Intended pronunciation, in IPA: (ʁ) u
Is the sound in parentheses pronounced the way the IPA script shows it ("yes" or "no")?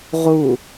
yes